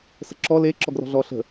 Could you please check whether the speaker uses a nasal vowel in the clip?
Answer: no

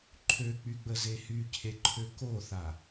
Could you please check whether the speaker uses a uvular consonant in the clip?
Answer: no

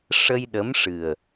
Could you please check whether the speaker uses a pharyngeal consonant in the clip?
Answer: no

